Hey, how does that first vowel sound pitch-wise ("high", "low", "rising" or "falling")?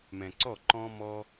low